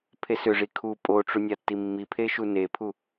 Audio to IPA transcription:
pʰ e s ʏ ʐ i kʰ u pʼ o ʈ͡ʂ u nʲ a tː i mː i pʰ e ʃ u n e pʰ u

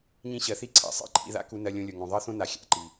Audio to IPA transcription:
ɲ ĩ˧ ɕ ɜ˨ θ i˦ ǀʰ a̰˨ sˤ ḭ˧ ǃʰ ḭ˧ ð a̰˦ k u˧ n ɜ˧ lʲ õ˧ lʲ o˨ ŋ õ˨ ðˤ ɜ˦ θ õ˦ n a˨ xʲ a̰˨ ǃ i˨

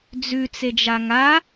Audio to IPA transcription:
d͡z ʉ t͡s e d͡ʒ a ŋ a

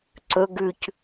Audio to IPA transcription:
ǀ ɵ ɡ ʉ c

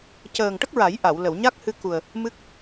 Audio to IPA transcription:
c əː˨˩ ŋ ʈ ə˦˥ k̚ ɹ a˨˩˦ j ʔ a˨˩˨ w l ə˨˩˨ w ɲ a˦˥ k̚ h ɨ˧ k u˨˩ ə̯ | m ɨ˦˥ k̚

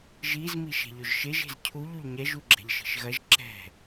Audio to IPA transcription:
ʒ i z m i ʃ ɛ̤ ʎ ɵ ʒ ʃ e ʒ e̤ z cʰ u ʎ u ʎ ɲ ɛ ʒ u ɡ͡ǁ ɛ̤ ʎ ʃ i̤ ʃ ɣ ɐ ʒ ǁ ɛ̤

